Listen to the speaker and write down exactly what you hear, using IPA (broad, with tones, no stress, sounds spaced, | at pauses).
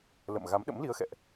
l ə̰˧˨ m ɣ a˨˦ m ɗ ə̰˧˥ m l i˨˦ ə̯ x ɛ̰˧˨ ʔ